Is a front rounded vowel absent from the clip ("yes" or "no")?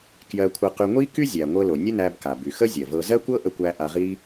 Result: no